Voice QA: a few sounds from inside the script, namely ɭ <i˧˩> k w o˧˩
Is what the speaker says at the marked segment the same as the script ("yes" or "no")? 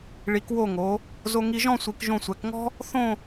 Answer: no